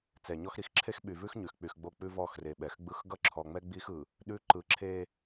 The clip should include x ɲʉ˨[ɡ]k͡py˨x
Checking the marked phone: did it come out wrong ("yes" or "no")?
yes